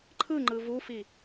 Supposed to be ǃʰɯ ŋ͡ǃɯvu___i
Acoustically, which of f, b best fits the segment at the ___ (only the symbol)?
f